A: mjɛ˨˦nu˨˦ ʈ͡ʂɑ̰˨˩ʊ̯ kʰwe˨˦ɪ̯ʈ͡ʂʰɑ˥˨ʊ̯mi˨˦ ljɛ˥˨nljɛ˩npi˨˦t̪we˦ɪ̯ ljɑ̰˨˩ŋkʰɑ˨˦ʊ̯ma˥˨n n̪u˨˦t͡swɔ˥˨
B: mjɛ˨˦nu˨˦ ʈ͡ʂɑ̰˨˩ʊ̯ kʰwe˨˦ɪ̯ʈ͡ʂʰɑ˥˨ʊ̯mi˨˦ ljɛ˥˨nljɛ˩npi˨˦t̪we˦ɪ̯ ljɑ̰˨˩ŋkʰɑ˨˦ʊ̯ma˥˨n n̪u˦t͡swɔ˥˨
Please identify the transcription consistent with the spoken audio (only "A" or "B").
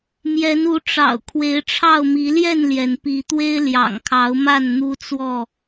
B